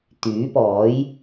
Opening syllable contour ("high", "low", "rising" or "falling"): rising